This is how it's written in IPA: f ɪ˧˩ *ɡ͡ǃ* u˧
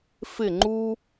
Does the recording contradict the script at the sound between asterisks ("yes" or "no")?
yes